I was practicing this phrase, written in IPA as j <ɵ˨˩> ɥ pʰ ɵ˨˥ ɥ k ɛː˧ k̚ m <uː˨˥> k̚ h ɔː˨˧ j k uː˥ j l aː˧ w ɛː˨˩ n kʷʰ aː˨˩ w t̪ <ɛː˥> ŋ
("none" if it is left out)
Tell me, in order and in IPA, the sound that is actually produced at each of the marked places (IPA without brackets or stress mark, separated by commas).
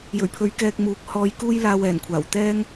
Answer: ɵ˨˩, uː˨˥, ɛː˥